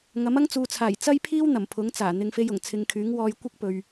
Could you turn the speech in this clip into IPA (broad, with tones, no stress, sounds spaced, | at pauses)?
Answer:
ŋ ɐ˨˥ m ɐ˥ ŋ t͡s uː˨ t͡sʰ aː˨˩ j t͡s ɐ˥ j pʰ iː˥ w n̪ ɐ˨˩ m pʰ ʊ˨˥ ŋ t͡s aː˨˩ n̪ ɪ˨ ŋ f e˧ j ʊ˨˩ ŋ t͡sʰ ɪ˨ ŋ kʰ yː˨˥ ŋ w ɔː˧ j kʷ ɪ˥ k̚ p ɵ˨ ɥ